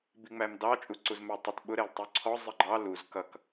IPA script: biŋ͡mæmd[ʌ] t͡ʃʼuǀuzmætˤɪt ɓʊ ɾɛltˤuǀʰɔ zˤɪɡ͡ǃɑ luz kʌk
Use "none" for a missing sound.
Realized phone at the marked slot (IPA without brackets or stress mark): ɑ